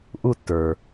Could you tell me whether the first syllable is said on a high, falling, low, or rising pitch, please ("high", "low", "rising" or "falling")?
falling